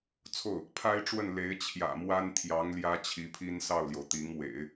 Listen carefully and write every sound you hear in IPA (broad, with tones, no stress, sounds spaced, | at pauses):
t͡sʰ o˥˩ ʊ̯ | pʰ a˥ ɪ̯ ʈ͡ʂ w ə˥˩ n l e˧˥ ɪ̯ t͡ɕʰ j ä̰˨˩ m w a˥ n t̪ʰ j ɑ˧˥ ŋ l j ä˥ t͡ɕʰ i˧˥ pʰ i˥ n s ɑ˥˩ ʊ̯ l j o˩ ʊ̯ t̪ i˧˥ ŋ w ḛ˨˩˦ ɪ̯